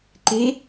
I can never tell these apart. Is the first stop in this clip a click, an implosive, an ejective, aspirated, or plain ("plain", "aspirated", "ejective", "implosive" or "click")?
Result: click